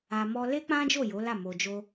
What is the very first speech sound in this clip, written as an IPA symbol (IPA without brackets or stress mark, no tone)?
a